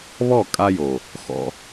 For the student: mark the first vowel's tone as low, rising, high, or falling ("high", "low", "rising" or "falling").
falling